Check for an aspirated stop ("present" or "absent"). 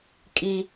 absent